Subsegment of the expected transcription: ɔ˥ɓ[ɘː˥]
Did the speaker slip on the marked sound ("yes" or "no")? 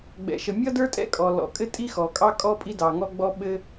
yes